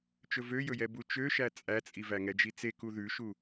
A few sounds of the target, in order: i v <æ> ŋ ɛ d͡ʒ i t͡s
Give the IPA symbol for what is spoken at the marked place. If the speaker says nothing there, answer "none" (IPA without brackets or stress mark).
æ